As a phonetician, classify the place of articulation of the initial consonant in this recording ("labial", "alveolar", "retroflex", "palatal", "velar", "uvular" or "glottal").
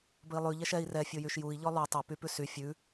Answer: labial